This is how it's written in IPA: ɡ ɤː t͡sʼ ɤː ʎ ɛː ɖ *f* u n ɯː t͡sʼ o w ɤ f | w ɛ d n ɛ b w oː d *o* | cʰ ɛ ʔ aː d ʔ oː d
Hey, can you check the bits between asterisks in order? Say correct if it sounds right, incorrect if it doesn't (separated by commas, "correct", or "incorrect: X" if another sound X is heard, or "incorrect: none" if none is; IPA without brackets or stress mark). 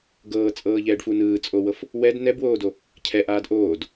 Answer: correct, correct